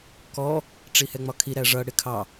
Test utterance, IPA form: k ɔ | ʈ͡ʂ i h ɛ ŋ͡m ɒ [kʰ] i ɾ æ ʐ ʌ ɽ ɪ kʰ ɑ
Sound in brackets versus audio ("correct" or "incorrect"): correct